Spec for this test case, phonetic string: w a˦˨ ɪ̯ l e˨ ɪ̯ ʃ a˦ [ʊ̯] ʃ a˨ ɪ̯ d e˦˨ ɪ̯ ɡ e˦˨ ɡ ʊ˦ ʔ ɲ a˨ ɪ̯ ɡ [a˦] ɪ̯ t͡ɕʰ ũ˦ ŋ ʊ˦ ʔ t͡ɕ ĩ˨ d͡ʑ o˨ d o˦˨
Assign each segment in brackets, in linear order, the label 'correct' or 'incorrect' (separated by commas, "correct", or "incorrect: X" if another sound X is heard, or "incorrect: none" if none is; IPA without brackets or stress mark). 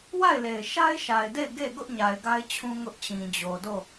incorrect: ɪ̯, correct